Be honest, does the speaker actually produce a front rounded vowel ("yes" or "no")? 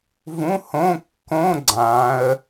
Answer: no